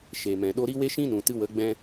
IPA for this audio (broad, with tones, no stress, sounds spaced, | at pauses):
ʃ e˨ m ɛ̃˨ ɗ o˧ ɾ i˦ w e˦ ʃ ĩ˦ n ũ˨ t ɨ˧ w ə˨˦ ɡ͡b ɛ̃˧